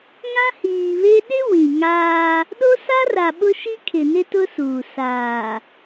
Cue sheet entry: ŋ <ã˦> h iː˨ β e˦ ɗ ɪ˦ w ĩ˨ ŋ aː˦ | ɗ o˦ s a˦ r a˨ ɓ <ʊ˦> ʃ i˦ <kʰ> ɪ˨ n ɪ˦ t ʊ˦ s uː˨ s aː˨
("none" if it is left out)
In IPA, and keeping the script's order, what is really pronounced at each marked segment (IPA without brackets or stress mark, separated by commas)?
ã˦, ʊ˦, kʰ